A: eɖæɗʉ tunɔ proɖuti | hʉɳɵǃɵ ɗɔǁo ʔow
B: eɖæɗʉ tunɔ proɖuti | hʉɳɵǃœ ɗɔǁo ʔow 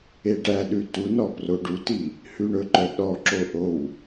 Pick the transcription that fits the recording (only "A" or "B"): B